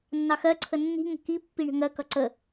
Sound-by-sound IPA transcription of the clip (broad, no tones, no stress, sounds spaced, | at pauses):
nː ɑ x ɜ ǀʰ ə nː i̤ ŋ ə̤ k i pː i ɳ ə̤ ŋ ɜ k ʌ ǀ ə